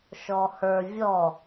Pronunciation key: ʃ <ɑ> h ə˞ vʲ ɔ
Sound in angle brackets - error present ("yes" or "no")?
yes